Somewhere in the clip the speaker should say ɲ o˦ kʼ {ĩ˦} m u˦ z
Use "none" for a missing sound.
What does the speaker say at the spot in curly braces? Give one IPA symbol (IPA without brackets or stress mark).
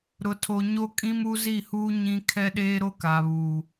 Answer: ĩ˦